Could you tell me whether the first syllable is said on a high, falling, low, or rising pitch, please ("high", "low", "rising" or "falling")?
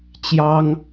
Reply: high